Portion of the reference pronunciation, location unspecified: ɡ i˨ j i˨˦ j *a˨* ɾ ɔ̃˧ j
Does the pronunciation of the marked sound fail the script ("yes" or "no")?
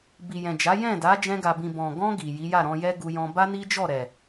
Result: yes